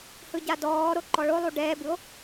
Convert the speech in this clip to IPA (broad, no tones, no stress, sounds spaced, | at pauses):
h ɯ ɟ a d ɔː ɾ o ǃ ɔ ɭ o lˠ u ɖ ɛː b ɯ o̯